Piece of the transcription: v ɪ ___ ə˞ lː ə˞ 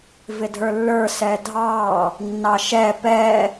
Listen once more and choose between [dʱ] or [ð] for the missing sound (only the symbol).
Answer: dʱ